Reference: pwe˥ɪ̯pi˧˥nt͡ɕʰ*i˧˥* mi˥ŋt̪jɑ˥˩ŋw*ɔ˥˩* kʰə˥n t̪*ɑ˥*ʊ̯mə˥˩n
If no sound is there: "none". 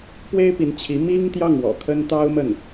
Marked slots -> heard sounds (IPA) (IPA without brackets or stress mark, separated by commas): i˧˥, ɔ̰˨˩, ɑ˥